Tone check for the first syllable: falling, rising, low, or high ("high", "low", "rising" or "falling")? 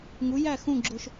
rising